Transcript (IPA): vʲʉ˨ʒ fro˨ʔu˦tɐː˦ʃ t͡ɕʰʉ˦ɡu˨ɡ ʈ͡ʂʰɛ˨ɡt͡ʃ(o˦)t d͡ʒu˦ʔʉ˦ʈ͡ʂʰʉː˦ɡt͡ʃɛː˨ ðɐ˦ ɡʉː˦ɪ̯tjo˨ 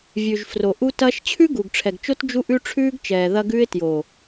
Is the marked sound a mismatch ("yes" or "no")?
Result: no